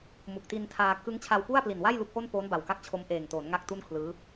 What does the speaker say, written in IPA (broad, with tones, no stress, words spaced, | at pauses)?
mu˨˩k̚ti˧ntʰaː˧ kɯ˦˥ŋt͡ɕʰa˧wpu˥˩a̯ pli˨˩nwa˥˩jlu˦˥k̚ ʔo˥˩npoː˦˥nba˨˩wka˦˥k̚ t͡ɕʰo˦˥m ʔeː˨˩ŋtoː˩˦nŋa˦˥k̚ tu˥˩nkʰlɯː˦˥